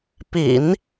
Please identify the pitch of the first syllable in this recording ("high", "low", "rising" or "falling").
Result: low